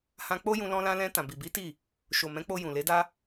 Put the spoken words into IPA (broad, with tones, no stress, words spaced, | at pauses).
hã˧k͡po˦jũ˧ lɔ̃˧lã˧lɛ̃˧ tã˨bi˨bi˨˦ ti˦˨ | ʃo˨mɛ̃˨˦k͡po˧ jũ˨le˨˦da˦